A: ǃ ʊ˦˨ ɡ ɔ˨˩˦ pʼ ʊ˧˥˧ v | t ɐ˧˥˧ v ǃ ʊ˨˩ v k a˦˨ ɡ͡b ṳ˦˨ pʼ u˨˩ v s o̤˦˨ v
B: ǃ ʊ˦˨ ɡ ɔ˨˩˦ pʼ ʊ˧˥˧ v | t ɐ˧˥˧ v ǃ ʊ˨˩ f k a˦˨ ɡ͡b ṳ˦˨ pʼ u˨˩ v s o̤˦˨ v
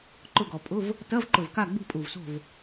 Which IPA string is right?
A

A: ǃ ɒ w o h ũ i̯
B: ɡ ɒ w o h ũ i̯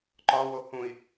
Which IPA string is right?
A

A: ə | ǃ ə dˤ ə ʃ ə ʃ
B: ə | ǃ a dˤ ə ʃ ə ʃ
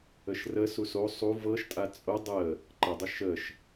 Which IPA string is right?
A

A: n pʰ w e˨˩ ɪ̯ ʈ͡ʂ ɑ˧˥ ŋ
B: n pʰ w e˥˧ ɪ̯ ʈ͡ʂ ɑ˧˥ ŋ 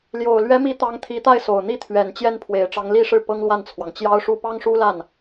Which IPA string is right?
A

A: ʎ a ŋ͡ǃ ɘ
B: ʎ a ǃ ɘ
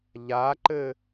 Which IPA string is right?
B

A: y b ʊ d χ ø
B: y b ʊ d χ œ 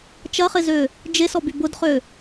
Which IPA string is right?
A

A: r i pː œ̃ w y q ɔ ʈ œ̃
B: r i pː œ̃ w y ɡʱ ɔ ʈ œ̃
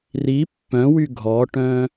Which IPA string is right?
B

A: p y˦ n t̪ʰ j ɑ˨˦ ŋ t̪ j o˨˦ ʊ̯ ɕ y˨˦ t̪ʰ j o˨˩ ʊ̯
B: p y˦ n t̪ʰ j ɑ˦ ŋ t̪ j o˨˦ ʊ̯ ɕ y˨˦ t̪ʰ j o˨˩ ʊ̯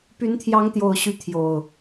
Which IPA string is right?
B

